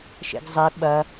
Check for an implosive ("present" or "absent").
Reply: present